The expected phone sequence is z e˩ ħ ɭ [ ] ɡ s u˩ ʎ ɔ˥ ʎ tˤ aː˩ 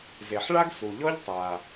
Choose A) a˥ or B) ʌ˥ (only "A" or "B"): A